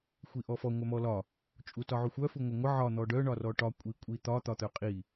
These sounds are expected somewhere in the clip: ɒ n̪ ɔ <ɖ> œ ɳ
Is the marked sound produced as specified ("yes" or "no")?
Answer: yes